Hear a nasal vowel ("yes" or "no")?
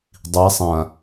yes